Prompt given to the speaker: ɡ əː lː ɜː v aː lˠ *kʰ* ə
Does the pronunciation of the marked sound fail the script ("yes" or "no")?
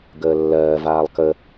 yes